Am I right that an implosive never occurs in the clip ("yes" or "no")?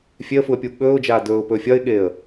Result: no